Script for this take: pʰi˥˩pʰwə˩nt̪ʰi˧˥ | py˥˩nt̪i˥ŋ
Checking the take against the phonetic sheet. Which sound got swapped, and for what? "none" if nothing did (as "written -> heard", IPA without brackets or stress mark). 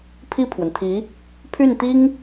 p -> pʰ